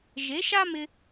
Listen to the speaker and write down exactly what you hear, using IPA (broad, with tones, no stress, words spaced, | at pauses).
ʒe˨˦ʃa˦mɪ˧